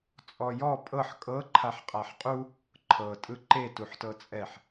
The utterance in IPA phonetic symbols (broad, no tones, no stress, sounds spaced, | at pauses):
t͡sʼ ɔ j ɔ pʼ ɤ ħ kʼ ɤ ǃʰ a ħ qʼ a ħ qʼ u | ǃʰ ɤ tʼ ɯ ǃ e t u ħ t ɤ t͡sʼ ɛ ħ